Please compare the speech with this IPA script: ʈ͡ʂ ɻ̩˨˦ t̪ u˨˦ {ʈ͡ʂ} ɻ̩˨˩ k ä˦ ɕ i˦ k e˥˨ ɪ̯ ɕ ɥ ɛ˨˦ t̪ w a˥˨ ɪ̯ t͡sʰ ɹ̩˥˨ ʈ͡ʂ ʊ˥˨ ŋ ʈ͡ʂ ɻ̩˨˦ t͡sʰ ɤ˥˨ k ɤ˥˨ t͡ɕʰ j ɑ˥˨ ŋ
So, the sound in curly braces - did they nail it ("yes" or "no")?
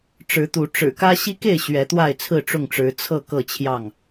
yes